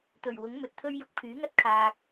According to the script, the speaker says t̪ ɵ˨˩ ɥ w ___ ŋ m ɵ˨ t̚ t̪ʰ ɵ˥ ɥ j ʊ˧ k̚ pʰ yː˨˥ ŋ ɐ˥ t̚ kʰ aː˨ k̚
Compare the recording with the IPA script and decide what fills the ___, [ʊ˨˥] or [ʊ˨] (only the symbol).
ʊ˨˥